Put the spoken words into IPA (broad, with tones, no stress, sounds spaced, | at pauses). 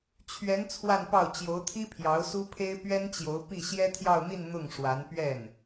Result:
t͡ɕʰ ɥ ɛ˧˥ n t͡sʰ w a˥˧ n p ɑ˥˩ ʊ̯ t͡ɕ j o˧˥ ʊ̯ t̪ʰ i˥ pʰ j ɑ˧˥ ʊ̯ s u˥ pʰ e˥ ɪ̯ p ɥ ɛ˥ n t͡ɕ j o˧˥ ʊ̯ p i˥˩ ɕ j ɛ˥ t̪ʰ j ɑ˥˧ ʊ̯ n̪ i˥˧ n n̪ ʊ˥˩ ŋ ʂ w a˧˥ n p ɥ ɛ˥˩ n